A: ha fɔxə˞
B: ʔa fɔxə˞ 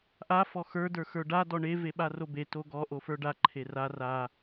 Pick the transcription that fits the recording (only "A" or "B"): B